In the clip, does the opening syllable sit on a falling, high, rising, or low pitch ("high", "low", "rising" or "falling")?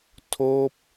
falling